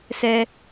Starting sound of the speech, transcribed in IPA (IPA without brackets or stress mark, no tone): s